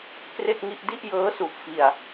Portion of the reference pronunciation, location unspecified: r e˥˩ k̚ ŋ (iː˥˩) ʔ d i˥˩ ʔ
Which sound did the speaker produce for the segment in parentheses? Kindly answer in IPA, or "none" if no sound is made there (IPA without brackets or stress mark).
i˥˩